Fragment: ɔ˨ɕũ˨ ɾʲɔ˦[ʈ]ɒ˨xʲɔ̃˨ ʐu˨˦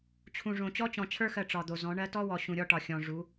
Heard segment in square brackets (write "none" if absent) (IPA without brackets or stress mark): ʈ